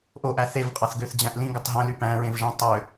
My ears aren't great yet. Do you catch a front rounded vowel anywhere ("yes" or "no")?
yes